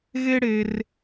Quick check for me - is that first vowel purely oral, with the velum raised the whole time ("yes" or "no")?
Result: yes